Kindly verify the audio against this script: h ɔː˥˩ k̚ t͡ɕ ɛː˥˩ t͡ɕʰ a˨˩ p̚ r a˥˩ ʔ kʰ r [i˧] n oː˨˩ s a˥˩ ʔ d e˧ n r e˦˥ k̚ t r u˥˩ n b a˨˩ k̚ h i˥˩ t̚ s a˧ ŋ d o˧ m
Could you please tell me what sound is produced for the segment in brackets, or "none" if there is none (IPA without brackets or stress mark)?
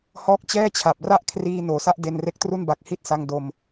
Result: iː˧